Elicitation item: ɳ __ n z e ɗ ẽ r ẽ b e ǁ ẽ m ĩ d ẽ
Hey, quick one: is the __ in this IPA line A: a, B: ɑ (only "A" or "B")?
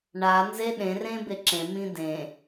A